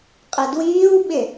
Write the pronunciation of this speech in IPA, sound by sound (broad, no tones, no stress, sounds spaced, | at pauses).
qʼ ɪ d w iː w ɓ ɪ